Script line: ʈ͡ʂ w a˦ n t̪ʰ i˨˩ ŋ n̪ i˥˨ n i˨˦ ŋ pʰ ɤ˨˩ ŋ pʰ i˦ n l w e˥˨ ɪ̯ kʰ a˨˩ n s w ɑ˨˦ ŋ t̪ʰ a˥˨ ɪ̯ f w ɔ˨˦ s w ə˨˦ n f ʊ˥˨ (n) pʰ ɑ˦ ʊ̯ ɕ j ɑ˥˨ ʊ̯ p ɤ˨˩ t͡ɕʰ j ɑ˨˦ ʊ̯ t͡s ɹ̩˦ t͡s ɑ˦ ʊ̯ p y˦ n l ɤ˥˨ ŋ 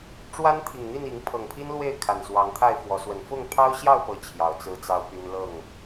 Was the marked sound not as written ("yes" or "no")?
yes